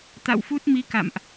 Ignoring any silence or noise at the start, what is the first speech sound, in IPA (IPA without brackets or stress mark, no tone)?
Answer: t̪